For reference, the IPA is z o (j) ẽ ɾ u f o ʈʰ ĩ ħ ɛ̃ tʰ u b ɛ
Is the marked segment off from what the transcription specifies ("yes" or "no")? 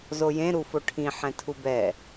no